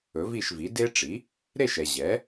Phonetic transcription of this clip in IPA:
ɵ˩˥vi˥˩ʃvi˩˥ de˥ ʈ͡ʂi˩˥ | ɾe˥˩ʃɛ˩ ʑɛ˩˥

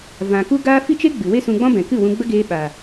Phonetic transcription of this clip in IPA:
vã˨ku˦ɡaː˦ fi˦t͡ʃe˦ɡ͡bɨ˨ we˦sũ˧ɡ͡bɔ̃˦bɛ̃˨ kɨ˦˨wũ˧ɡ͡bə˦ ɡeː˧ɓaː˨

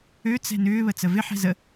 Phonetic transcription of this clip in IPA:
ø t͡sɛ̤nʏː βət͡səvɪ ħɛ̤zə

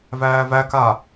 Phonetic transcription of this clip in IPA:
væːvæka

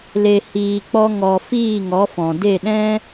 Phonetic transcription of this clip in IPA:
le˨hiː˨k͡pɔ˧ ŋɔ˨ fiː˦˨ ŋɔ˨˦fɔ̃˨ de˦˨ɗɛ̃˦

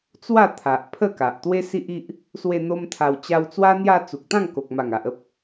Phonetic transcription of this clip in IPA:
t͡swa˥˧t̪ʰa˨ʔpʰə˥˧ka˨ʔ t̪we˦si˦ʔi˦ʔ | swe˧ n̪o˦mt̪ʰa˧wt͡ɕa˦w t͡swa˧n̪ja˧ t͡su˨k̚t̪ã˥˧ŋko˨k̚ ma˨˩ŋa˨ʔə˦p̚

